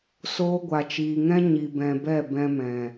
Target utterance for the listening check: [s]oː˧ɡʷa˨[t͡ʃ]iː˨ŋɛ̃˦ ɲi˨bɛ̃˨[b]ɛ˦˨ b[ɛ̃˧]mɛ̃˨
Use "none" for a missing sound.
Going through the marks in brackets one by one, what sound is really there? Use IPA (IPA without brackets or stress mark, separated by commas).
s, t͡ʃ, b, ɛ̃˧